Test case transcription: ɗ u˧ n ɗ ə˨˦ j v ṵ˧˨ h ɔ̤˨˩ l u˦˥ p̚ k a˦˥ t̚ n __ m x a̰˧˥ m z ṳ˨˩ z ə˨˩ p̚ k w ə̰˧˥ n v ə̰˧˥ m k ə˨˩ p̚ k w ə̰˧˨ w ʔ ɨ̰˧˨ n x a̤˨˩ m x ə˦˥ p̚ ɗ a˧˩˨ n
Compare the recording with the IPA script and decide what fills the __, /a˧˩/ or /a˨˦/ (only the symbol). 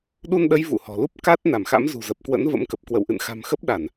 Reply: a˧˩